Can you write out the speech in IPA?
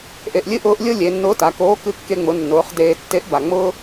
ʔ e˧ ʔ lʲ ɨ˥ ʔ ʊː˥ ʔ lʲ ʊ˥ lʲ e˩˧ nː ʊː˧˥ t a˩˧ k oː˧˥ k ɨ˧˥ kː e˧ ŋ͡m ʊ˩˧ nː ʊː˩˧ χ d eː˧ tː e˧˥ ʔ b a˩ ŋ͡m ʊː˥

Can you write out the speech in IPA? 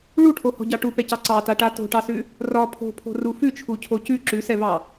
ɭ u ʈʰ o h ɔ̤ ɟ ɑ ʈ u p ɛ c ɑ ǀ ɑ t a ʈ a t o̤ ʈ ɑ s ʉ | r ɒ pʰ o̤ pʰ o̤ r u f ʉ t͡ʃʰ u cʰ o c ʉ ǁ ʉ s ɛ v ɑ

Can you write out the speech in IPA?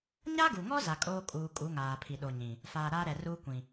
ɲ a˦ ɡ u˨ ŋ ɔ˦ z a˨ kʼ oː˦ kʼ uː˨ kʼ u˨˦ ŋ aː˨ pʰ i˨ ɗ o˨ ɲ ĩ˨ | f aː˨ ɾ aː˦ ɾ ɛ˨ r uː˦ kʷ ĩ˨

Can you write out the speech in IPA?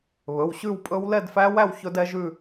β ɵ˩˧˩ w ɕ ʉ˥˧ w pʼ ɵ˦˥ w l ɛ˥˧ d f æ˦˥ w æ˥˧ w ç ɵ˦˥ d ɛ˦˥ ʒ ʉ˥˧

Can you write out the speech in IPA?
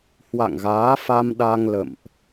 h w a̰˧˨ ŋ ɣ aː˨˦ f a˧ m ɗ a˧ ŋ l ə̰˧˨ m ʔ

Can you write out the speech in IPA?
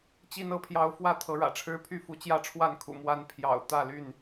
t͡ɕ i˦ n ɤ˥˨ pʰ j ɑ˦ ʊ̯ f w ä˥˨ t̪ʰ ɤ˨˦ ɻ ä̰˨˩ ʈ͡ʂʰ ɻ̩˦ pʰ y˥˨ f u˨˦ t͡ɕ j ä˥˨ ʈ͡ʂʰ w a˥˨ n kʰ ṵ˨˩ m w a˦ n pʰ j ɑ̰˨˩ ʊ̯ t̪ ä˥˨ l y˥˨ n

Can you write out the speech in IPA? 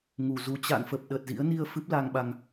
ŋ u˨˩ z u˧ t͡ɕ a̰˧˨ n f ə˨˩ p̚ ɗ ə˨˩ t̚ z ḭ˧˥ ə̯ n i˧ ə̯ f ɨ˦˥ p̚ l a˧ ŋ ɓ a˧ ŋ

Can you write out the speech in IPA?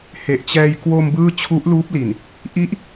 h e˨˩ ʔ t͡ɕ ɛː˧ j k w o˧ m b ɯː˥˩ t͡ɕʰ u˦˥ ʔ l uː˦˥ p̚ l i˨˩ n | ʔ i˦˥ ʔ

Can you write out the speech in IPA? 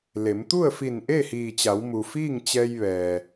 l e˩˧ m t̪ u˥˨ ə̯ f i˧˩ n ʔ e˥˨ h iː˧˩ t͡ɕ a˩˧ w m u˩ f iː˥˨ ŋ t͡ɕ ɛː˧ j ʋ ɛː˩

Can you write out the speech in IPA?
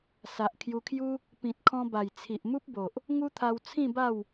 s a˨ ʔ kʰ j u˧ kʰ j u˦ | p ĩ˨ t̚ kʰ ɔ̃˧ b a˨˩ j t͡sʰ i˨ ʔ m u˦ p̚ b o˨ ʔ | ŋ u˦ t̪ʰ a˧ w t͡sʰ ĩ˥˧ b a˥˧ w

